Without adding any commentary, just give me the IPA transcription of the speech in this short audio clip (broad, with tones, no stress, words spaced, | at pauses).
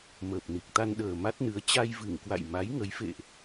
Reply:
məː˨˩p̚ ni˨˩k̚t̪a˧n ɗəː˨˩ ma˦˥t̚nɨ˨˦ə̯ t͡ɕa˧jvɨ˧˩ŋkwa̰˧˨j ma˨˦j ŋə˨˦jfḛ˧˨ʔ